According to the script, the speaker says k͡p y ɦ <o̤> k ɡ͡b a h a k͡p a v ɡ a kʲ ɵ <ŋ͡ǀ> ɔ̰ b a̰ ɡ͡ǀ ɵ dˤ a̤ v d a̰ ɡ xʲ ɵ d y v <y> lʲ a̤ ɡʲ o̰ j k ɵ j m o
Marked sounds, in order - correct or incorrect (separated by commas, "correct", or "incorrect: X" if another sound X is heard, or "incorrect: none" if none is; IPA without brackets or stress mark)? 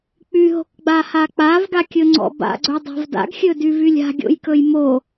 correct, correct, correct